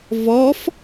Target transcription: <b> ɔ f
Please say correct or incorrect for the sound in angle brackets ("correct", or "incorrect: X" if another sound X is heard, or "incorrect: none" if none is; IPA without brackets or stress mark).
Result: incorrect: v